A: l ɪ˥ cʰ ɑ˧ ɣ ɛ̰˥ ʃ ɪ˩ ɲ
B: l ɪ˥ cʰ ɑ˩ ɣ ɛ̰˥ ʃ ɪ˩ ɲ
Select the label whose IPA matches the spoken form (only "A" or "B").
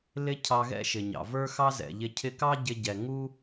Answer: A